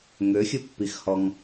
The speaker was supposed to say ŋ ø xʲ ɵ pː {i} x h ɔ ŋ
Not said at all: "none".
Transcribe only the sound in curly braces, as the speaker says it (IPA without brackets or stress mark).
i